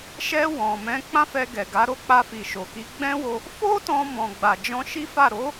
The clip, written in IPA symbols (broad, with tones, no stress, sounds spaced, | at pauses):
ʃ ɛ˧ w ɔ̃˨ m ɛ̃˨˦ k͡p ã˦ f ɛ˧ ɡ ɛ˨ ɡ a˨˦ ɾ o˦ k͡p a˧ f i˨ ʃ o˨ k i˨˦ ɡ͡b ɛ̃˦ w o˧ | f o˦ t ɔ̃˧ m ɔ̃˨ ɡ͡b a˨ d͡ʒ ɔ̃˧ ʃ i˦ f a˦˨ ɾ o˨˦